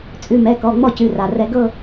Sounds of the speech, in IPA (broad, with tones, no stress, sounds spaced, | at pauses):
t͡sʼ ʉ˩˧˩ m ɛ˩˧˩ k ɔ˩˧˩ ŋ͡m ɔ˥˩ c ʉ˩˧˩ r a˩ r ɛ˧ ɡ ɤ˥˧